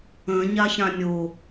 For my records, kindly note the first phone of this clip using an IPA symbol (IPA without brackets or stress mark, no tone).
ə̃